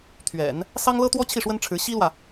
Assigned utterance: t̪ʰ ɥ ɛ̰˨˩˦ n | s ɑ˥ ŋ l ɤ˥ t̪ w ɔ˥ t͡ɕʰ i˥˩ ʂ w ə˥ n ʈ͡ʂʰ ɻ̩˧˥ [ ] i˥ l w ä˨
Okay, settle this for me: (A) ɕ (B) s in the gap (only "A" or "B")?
A